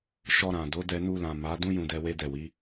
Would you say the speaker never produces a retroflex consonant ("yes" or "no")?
yes